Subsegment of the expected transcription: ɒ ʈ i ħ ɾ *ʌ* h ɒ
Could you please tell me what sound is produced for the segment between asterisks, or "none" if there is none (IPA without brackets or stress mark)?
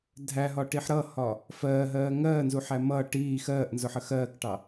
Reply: ʌ